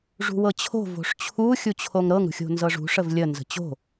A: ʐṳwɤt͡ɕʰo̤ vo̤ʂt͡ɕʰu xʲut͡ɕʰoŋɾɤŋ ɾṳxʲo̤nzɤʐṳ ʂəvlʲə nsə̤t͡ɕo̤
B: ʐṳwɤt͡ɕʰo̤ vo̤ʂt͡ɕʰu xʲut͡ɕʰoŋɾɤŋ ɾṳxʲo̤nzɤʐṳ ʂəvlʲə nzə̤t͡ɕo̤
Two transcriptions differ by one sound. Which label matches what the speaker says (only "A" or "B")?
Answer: B